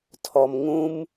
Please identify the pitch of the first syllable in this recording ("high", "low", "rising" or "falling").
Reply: low